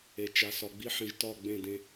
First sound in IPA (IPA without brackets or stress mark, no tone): e